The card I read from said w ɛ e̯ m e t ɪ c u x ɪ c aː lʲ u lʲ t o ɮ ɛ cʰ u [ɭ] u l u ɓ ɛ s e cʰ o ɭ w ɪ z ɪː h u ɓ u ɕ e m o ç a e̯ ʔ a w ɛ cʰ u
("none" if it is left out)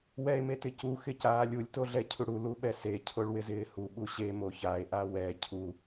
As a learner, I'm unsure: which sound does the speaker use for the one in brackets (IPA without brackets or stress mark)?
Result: ɽ